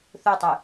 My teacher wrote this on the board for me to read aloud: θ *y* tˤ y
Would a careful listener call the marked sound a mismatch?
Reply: yes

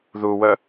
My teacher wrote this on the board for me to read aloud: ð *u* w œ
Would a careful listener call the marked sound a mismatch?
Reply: no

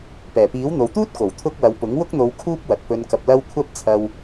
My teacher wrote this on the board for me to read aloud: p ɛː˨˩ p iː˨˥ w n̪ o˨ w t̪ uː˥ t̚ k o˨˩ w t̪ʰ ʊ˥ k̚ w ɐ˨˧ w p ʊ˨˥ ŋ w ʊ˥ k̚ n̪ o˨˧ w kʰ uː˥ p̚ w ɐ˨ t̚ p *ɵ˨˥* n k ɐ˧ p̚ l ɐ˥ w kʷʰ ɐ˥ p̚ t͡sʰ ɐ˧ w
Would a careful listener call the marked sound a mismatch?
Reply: yes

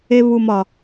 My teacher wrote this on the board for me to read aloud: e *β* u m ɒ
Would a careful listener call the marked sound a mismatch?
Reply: no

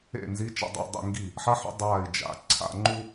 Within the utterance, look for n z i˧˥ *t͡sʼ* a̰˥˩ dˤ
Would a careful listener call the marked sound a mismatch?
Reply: yes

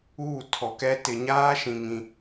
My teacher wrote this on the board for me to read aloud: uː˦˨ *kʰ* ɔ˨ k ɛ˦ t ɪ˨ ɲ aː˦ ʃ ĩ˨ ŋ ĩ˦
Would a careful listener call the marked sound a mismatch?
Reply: yes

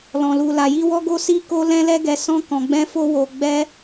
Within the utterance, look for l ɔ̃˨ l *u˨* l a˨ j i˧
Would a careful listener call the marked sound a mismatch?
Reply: no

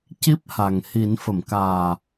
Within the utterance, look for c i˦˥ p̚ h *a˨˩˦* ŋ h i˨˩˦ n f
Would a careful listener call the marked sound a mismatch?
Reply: yes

